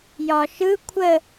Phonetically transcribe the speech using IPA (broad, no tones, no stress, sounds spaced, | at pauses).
j ɒ ʃ ɯ kʷʰ ə